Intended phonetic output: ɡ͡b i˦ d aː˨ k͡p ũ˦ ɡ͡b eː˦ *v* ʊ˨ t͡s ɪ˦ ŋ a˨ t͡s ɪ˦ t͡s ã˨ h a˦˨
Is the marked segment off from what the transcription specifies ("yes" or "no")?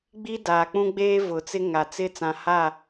no